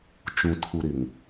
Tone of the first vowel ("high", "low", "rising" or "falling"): low